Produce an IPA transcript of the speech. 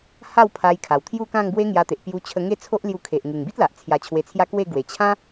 ha˥˧w pʰa˧jkʰa˨˩wt̪ʰju˥˧ kã˥˧ŋbwe˦ŋja˧t̪e˨ʔ pju˧t͡ɕʰə˧ŋe˥˧t͡sʰo˦ʔ lju˧kʰe˨ʔ ŋu˨˩ŋbi˦t̚la˨ʔ t͡sʰja˧t͡ɕʰwe˧t͡sʰja˦ kwe˥˧ ɡwe˨˩t͡ɕʰã˦

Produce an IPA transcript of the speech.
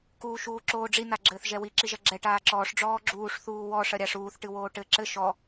kuːʃuːǁoːɖ͡ʐi naɡ͡ǁɘːθʒɛwi ǁiʒɐɡ͡ǁɛ ʈaːǁɔːʂ ɖ͡ʐɔːɡ͡ǁuːʂ θuːwɔ ʂɐɾʲaʂuːθ ʈɨwoːʈɘ ǁɘ ʃɔ

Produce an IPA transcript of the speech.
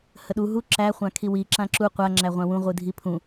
həɗu ɦu ǁæ χʷãkʰiwi ǁãǁu qʷa ŋ͡ǁæʁʷãwũ ʁʷɨdʱipʰũ

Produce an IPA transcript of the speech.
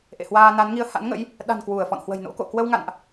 ʔḛ˧˨hwaː˧na˨˦n ŋi˨˦ə̯ha̰˧˥nŋə̰˧˥j | ɗa̤˨˩n kwu˧˩ə̯fɔ̰˧˨nhwə̤˨˩j no̰˧˥ko̰˧˨ kwə˧wŋa̰˧˨nʔ

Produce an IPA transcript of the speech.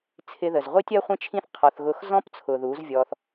t͡sʰɪ˧ðə˨zʁʷi˦tʲ ɜ˦χʷĩ˦t͡ʃʰĩ˦θ qʰɔ˧θ ɣʊ˧xzɔ̃˦p t͡sʰʊ˨ ðu˨˦zvʲɔ˧θ

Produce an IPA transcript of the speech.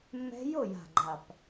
mːɛ̤˦˥ jo˥˨ja̤˨˩ɡ͡ǃa˨˩p

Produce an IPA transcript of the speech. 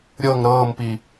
ɾʲɤŋ ɾɤːmpi

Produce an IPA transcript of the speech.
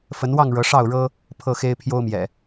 fə˨˦nwɑ˥˨ŋ ɻɤ˨˦ʂɑ˥˨ʊ̯ɻɤ˦ | pʰɤ˥˨xe˦ɪ̯ pʰjo˦ʊ̯mjɛ̰˨˩

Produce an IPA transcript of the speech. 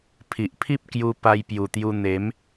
pʰi˨ʔpʰi˦p̚kju˧ pa˧jpju˨˩t̪ju˧ n̪e˨˦m

